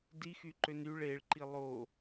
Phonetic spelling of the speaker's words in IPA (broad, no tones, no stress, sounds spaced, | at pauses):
d i x y ǃ ø n y ɭ e ɭ ǃ i lˠ o